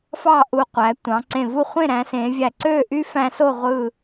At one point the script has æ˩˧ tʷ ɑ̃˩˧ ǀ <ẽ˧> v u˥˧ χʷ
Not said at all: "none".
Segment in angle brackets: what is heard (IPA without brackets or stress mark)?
ẽ˧˩